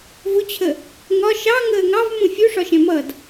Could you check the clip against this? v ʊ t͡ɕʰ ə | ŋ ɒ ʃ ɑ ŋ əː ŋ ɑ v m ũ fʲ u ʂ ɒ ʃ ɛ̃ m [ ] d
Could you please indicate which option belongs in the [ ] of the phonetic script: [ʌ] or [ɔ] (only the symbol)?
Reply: ʌ